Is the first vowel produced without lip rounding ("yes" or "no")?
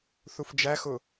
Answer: no